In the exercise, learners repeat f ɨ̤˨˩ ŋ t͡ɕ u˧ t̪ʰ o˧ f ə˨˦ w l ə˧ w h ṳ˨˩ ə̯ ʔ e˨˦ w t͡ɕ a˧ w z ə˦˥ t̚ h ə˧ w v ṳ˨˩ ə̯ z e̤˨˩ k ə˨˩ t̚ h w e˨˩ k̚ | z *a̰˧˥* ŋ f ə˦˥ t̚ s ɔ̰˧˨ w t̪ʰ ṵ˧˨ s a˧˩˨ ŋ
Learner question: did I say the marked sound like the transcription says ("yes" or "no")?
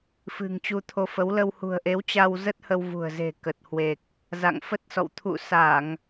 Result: no